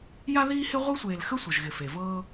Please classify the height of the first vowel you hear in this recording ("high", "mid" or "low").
low